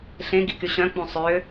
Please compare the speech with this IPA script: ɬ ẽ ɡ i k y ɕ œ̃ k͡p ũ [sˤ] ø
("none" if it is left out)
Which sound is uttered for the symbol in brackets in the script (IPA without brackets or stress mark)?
sˤ